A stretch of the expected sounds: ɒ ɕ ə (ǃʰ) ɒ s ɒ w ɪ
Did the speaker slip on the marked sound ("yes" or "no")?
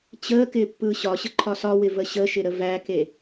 no